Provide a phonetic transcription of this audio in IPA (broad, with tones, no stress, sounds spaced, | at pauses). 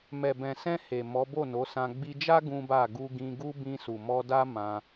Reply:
m ɛ˨ b ɛ̃˨ s ɛ̃˧ h e˨ m ɔ˨˦ b o˦˨ n o˨˦ s ã˧ ɡ͡b i˧ d͡ʒ a˦ ɡ ũ˦ b a˦˨ ɡ u˧ ɡ ĩ˧ ɡ u˦ b ĩ˧ s u˨ m ɔ˧ d a˦ m ã˧